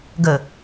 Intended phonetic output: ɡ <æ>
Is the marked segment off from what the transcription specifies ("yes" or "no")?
yes